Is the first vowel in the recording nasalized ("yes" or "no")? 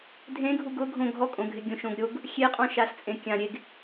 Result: yes